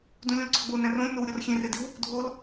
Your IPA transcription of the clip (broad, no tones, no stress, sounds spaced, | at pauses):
d ũ lʲ ũ l ɡ͡ǀ ɒ ɡ͡b o n æ̃ r õ lʲ n o w ɾʲ ɒ r xʲ ẽ r e d i w | dʱ o l